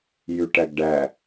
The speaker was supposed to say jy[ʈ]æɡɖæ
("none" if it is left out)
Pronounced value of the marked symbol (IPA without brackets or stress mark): ʈ